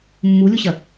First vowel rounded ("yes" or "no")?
yes